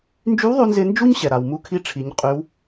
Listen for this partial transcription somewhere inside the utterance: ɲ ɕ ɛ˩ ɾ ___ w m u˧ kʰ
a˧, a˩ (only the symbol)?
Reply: a˩